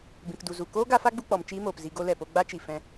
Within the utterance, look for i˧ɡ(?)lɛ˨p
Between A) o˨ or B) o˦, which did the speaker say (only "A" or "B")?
B